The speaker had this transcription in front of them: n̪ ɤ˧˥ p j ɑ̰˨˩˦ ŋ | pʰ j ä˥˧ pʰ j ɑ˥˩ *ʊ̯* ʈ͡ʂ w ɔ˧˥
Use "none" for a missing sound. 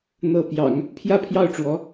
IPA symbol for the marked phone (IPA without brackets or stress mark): ʊ̯